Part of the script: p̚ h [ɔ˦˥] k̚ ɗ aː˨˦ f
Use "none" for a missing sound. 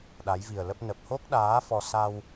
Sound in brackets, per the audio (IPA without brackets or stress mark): o˦˥